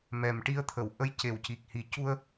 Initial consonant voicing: voiced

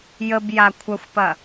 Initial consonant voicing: voiced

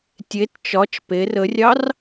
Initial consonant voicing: voiceless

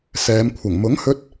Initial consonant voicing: voiceless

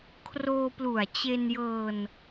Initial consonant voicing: voiceless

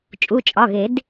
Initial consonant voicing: voiceless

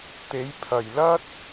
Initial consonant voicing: voiceless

